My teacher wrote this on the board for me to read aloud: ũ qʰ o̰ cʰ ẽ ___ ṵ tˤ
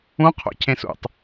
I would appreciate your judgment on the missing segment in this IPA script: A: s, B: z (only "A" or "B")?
A